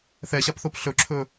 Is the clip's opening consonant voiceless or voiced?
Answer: voiceless